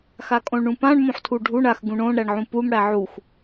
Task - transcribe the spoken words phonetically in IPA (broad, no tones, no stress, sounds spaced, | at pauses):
x a kʼ õ ɭ ɳ ũ p ã ɳ m õ ħ tʰ u ɖʱ u ɳ a x ɡ ũ ɳ õ ɳ ɾ æ ɳ ʕ ũ p u m ɽ æ ʕ u x